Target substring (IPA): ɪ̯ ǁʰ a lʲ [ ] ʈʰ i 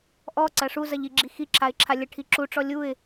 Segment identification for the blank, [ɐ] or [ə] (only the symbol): ə